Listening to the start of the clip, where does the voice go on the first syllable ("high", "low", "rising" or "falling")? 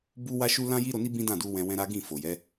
high